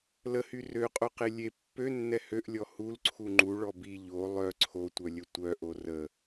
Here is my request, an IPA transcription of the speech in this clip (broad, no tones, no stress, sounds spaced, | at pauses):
l ə h y r ø qʼ o q e lʲ e pː ø nː ɛ h ø ʔ lʲ ɔ h u l ǀʰ u ŋ͡ǃ u ɭ ɔ b i ʎ o lˠ œ ǀʰ o tʷ œ lʲ ə tʷ œ ʔ o r ə